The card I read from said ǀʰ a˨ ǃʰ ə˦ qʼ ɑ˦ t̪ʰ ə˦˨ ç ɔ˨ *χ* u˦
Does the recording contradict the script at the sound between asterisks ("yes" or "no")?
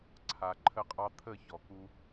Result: yes